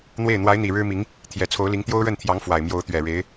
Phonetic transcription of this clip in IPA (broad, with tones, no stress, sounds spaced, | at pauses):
n̪ w e˥˩ ɪ̯ n̪ w a˧˥ ɪ̯ n̪ i˨˩ ɻ ɻ̩˥ m i˧˥ ŋ | t̪ʰ j ɛ˨˩ t͡sʰ o˧˥ ʊ̯ l i˧˥ ŋ t̪ j o˥ ʊ̯ ɻ ə˥˩ n t̪ʰ j ɑ˧˥ ŋ f w a˨˩ ɪ̯ m j o˧˥ ʊ̯ t̪ ɥ ɛ˨˩ ɻ e˧˥ ɪ̯